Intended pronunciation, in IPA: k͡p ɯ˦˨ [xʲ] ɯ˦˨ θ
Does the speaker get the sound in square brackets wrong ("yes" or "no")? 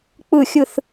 no